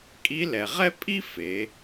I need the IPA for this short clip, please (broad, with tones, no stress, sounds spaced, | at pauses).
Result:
kʼ i˧˥ l ɛ˩ ʁ ɛ˥ pʼ i˥ f e˩˧